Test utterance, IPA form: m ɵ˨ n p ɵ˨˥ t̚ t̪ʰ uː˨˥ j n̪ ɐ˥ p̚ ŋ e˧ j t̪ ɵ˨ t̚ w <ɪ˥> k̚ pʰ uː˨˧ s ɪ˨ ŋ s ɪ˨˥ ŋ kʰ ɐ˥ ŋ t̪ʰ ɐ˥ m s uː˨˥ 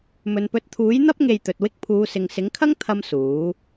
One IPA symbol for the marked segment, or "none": ɪ˥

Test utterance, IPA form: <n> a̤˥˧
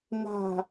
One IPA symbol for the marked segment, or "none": n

